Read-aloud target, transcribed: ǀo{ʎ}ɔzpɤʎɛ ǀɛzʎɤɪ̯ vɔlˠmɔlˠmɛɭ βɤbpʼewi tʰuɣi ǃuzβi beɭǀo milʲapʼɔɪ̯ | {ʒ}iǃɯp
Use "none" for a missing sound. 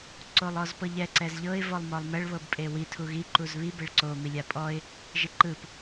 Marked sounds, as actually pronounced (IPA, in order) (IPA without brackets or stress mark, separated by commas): lˠ, ʒ